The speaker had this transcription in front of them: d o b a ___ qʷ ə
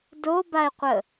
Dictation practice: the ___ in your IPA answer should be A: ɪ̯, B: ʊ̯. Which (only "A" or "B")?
A